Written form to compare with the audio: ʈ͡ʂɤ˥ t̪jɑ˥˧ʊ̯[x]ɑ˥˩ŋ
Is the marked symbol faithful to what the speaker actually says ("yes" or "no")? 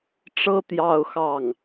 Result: yes